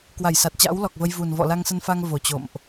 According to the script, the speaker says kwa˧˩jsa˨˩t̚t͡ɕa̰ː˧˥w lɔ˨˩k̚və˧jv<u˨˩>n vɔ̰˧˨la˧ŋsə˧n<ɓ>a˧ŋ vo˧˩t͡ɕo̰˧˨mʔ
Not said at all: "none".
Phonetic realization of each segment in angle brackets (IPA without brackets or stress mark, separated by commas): u˨˩, f